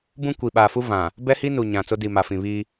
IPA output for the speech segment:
bũ˦kʷi˨ɓaː˨fu˦ vã˨ | bɛ˦hi˦ nu˨ɲã˨ t͡so˦di˨ ma˨fĩ˨βiː˦

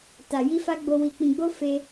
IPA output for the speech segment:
ta˨ji˧fa˧ ɡ͡bo˧ wi˨k͡pĩ˨ɡ͡bo˧ fe˧

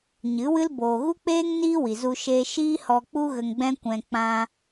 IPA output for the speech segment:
ɲɨ˨˦wɨ˦l boː˨ɣu˦k͡peː˦ŋ niː˦wi˨zu˧ ʃeː˧ʃiː˦hɔ˧k͡pu˦ ɣə˧ŋɡ͡bɛ̃˦kʷɛ̃˧ k͡pã˦

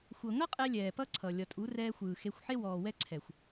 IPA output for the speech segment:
xʷɤ˨ŋʌ˦qʼɛ˧ lʲɛː˨pʌ˦ǀʰʌ˨ lʲʌ˨tʼu˨˦ rɛː˧xʷɯː˨xe˧xʷħe˦ wɔː˨wɛ˦ǀʰɛ˨xʷ

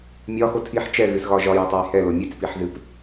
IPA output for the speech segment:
mʲɒxo tʰiħ t͡ʃɛɣɨsɣɒ ʒɒjɛtˤɛj hɛlo mʲɨt͡spiħzɨp

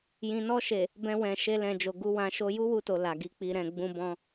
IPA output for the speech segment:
jĩ˨nɔ˧ʃe˨ | bɛ̃˧wɛ̃˨ʃe˧lɛ̃˨ d͡ʒo˨ɡu˨˦wã˧ʃo˦ ju˦wu˧to˨ la˨ɡi˨˦k͡pi˧ɾɛ̃˧ ɡ͡bũ˧bɔ̃˧

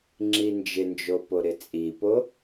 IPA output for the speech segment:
ŋ͡ǁind͡ʒɪnd͡ʒo poɾɪt͡sʼipo

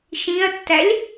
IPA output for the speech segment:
ʃĩɐ̯tːælʲ

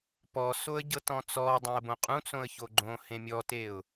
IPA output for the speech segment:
pɔsoə̯ ɟɤtɔ̃t͡sɔ dˤẽə̯bõqʼũt͡sõə̯ çoɡ͡ǃõ hẽmʲɔteʊ̯

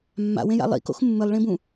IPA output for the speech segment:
mːa̰wẽja̰ lˠḭko̰x mːɨlˠɭĩbũ

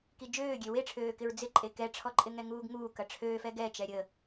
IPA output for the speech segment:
kid͡ʒøːɡʲø weʈ͡ʂʰøːkɪɹ d͡zɪǃʼe kɛʈ͡ʂʰɔǃʼɪ ŋɛŋuːɡŋuː kɐʈ͡ʂʰøːfɛ ɡɛt͡ʃɛ ɾʲə

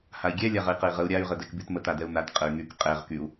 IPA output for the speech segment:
hai̯ɡʲɛ lʲaʁəi̯qəi̯ʁəu̯ ɾʲay̯ ʁədɛkbytmət adɛu̯nat qʼəy̯ŋyk qʼɛʁ kyu̯

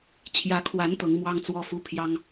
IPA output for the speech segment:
t͡ɕʰjä˧˥kʰwa˧˥n t̪ɤ˧˥ŋmwɑ˥ŋt͡swɔ˥fu˥ pʰjɑ˥ŋ

